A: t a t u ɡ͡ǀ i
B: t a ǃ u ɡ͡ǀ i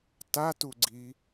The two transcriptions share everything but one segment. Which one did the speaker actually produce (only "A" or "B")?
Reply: A